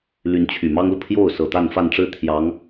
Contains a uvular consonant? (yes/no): no